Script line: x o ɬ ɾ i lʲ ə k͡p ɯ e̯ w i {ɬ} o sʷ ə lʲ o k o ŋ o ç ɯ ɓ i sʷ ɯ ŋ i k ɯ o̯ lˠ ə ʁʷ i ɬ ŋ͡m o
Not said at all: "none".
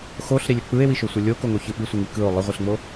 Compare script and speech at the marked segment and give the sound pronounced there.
ʃ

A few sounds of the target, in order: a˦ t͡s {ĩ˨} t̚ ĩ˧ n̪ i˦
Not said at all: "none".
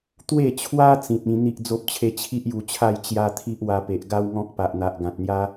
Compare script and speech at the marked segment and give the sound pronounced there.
ĩ˨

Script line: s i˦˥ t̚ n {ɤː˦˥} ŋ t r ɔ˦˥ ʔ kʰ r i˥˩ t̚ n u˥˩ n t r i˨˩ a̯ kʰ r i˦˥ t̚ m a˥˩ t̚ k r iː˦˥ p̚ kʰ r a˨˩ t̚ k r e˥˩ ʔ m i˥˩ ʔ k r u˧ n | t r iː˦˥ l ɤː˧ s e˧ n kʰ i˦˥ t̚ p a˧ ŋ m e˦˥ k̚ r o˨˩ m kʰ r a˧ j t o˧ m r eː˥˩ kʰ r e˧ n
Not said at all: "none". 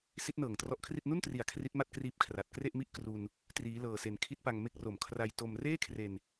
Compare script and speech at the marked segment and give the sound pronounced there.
ɤː˨˩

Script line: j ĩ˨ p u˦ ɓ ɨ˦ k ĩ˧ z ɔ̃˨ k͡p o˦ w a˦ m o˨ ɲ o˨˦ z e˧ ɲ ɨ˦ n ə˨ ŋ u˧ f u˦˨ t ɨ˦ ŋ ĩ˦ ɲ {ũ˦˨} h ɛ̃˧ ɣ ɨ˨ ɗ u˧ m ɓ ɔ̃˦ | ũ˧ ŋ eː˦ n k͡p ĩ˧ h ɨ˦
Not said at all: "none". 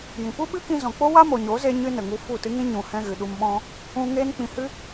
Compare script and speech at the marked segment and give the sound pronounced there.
ũ˨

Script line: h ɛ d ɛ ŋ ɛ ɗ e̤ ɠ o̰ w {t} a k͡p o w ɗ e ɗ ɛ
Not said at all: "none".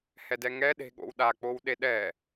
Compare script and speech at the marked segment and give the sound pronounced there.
ɗ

